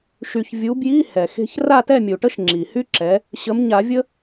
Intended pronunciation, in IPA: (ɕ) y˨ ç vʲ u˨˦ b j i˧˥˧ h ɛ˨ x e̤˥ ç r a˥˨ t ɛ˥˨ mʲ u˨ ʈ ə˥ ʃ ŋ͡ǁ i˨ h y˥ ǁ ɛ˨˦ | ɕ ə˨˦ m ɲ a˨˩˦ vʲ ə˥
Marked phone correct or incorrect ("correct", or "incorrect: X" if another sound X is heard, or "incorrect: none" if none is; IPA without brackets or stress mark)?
incorrect: ʃ